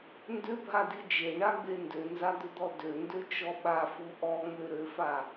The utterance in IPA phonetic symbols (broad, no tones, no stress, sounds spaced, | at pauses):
n d ʏ bʱ a d i d͡ʒ e ɳ a ɡ͡b e n d ø n z a d̪ ʏ d̪ ɔ d ø n d ø t͡ʃ ɔ ɓ a f u ʔ ɔ ŋ͡m ø ɾ ø f a